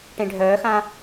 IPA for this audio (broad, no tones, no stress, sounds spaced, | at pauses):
ʈ ẽ ɖʱ œː x ã